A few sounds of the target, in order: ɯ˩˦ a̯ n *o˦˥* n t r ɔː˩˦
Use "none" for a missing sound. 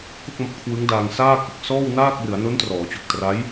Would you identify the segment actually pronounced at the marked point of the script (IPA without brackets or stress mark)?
o˦˥